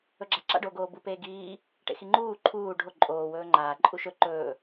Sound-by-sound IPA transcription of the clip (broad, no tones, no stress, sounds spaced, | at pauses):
ɵ ɡ͡ǁ a ǁ a̰ ɖ oː ɡ oː b u p eː ɡ iː | ʈ ḛ x i ŋ͡ǃ uː ǃʰ uː ɖʱ o ǃʼ oː w ɵː ŋ͡ǃ aː ǃʼ u ʃ ɵ ǃ ɵː